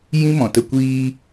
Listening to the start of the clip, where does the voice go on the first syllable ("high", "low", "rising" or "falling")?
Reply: high